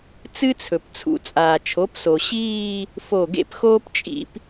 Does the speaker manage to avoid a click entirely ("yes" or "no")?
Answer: yes